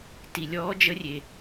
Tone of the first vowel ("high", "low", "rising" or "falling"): low